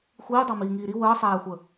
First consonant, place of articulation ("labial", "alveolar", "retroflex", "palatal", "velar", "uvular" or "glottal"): velar